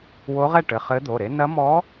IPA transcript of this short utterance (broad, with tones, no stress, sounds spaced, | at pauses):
w o˧˥ ʁ ɛ˥˨ ʈ ɘ˩˧˩ χ ɘ˧˥ d̪ o˩˧˩ ɾ e˧˥ n ɐ˧˥ m ɔ˧˥